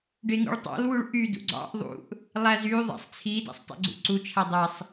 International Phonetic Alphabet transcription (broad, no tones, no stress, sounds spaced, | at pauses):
ɖ e ŋ ṵ ɭ tˤ ɑ̰ l w u ɭ ʔ y d ṵ ɡ͡ǀ ɑ̰ ʔ ðˤ ṵ ʔ | lˠ æ z y ðˤ æ̰ sˤ t͡sʰ i d æ̰ sˤ tˤ ḛ ɡ͡ǀ ṵ ǀ u t͡ʃʰ æ dˤ æ sˤ